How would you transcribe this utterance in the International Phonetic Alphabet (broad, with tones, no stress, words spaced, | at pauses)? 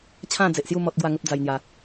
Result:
t͡ɕʰã˥˧d͡ze˨ʔsju˥˧ mɔ˦t̚ ɡwa˥˧ŋə˦p̚ d͡za˧jn̪ja˧